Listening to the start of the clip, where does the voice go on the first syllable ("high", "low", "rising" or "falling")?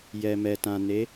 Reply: low